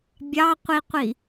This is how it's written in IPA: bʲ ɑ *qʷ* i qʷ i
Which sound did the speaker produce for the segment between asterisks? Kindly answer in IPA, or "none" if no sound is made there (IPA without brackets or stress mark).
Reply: qʷ